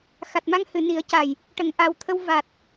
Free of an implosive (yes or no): yes